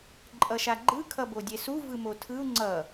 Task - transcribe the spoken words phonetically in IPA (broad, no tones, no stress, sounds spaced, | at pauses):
ǃʼ ʌ ʃ a ɡ͡ǃ ɯ kʰ ʌ b o dʲ ɛ s u v ɯ m o tʰ ɯ u̯ ŋ͡ǀ ʌ